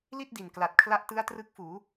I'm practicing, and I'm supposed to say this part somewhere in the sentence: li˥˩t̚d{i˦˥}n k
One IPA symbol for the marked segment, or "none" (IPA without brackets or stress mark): i˨˩